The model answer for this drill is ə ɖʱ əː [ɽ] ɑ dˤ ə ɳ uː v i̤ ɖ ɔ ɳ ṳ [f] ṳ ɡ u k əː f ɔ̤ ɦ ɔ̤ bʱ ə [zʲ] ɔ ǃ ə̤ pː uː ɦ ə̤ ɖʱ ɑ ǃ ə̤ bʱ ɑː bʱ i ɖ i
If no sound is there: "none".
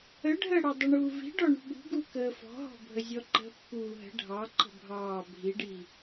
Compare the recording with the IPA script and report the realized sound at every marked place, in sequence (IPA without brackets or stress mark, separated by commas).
ɽ, ɓ, zʲ